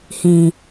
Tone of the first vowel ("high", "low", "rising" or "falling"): low